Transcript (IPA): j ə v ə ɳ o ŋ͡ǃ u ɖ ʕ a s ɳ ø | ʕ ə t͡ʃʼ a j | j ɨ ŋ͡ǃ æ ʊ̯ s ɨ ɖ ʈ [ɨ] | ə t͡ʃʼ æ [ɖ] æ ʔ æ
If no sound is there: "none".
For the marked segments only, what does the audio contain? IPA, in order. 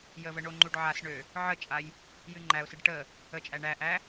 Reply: ə, ɳ

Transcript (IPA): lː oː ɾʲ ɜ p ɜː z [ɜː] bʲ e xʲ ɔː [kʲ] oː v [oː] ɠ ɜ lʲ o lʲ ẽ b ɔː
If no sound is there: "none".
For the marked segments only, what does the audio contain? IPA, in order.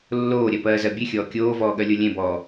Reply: ɜ, kʲ, ɔː

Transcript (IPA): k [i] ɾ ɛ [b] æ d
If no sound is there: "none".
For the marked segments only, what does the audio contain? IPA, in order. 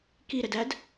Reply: i, d

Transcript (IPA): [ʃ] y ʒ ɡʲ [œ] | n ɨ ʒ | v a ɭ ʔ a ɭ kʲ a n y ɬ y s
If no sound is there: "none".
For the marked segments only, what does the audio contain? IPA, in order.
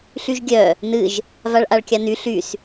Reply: ɬ, œ

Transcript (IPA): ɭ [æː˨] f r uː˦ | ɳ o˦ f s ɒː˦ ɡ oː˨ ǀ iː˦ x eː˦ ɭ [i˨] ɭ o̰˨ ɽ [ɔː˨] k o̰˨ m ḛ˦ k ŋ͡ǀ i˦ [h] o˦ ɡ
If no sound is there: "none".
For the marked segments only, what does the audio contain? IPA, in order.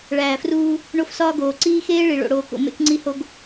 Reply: æː˨, i˨, oː˨, h

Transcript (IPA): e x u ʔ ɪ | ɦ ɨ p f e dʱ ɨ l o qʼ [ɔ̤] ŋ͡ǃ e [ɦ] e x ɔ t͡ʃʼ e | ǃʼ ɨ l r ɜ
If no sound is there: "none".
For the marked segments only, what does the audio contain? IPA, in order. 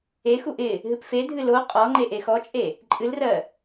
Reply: ɔ, ʔ

